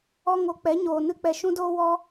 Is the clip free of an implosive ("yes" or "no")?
yes